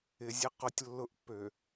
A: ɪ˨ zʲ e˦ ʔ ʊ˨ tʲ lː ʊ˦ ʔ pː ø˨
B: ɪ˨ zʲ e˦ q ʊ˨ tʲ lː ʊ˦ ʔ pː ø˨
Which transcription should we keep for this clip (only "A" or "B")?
B